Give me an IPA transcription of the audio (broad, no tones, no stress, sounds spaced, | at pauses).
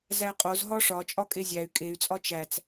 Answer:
z æ qʼ o z ɦ ɒ ʂ ɒ t͡ʃʼ ɒ kʼ e zʲ æ y̯ kʼ e y̯ t͡sʼ ɒ t͡ʃ æ t͡s